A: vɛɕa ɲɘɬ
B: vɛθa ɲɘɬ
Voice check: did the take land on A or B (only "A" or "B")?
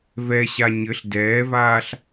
A